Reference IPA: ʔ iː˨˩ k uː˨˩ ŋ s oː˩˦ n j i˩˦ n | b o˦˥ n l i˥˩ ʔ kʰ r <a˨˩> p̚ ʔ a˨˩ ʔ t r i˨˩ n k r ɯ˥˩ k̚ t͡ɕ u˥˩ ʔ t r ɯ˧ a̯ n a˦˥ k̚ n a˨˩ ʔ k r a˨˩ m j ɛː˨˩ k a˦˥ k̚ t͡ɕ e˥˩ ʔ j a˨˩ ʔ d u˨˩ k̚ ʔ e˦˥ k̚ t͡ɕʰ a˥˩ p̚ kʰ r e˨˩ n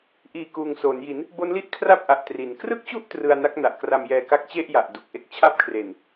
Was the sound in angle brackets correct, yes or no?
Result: no